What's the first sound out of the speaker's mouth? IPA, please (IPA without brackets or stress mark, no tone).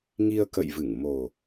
ŋ